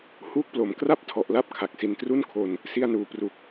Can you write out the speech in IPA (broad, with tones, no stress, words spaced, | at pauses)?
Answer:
huː˥˩k̚plo˩˦m kra˥˩p̚ tʰɔ˨˩ʔla˦˥p̚ kʰa˨˩k̚si˧n tru˥˩nkʰo˧n | si˧a̯ nuː˩˦pru˨˩k̚